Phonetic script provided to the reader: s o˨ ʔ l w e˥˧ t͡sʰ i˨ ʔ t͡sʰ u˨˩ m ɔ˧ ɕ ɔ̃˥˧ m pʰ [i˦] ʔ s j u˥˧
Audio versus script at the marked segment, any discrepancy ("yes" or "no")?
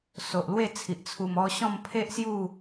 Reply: yes